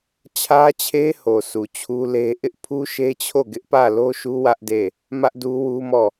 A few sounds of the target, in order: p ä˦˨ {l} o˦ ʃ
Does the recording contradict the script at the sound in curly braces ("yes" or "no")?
no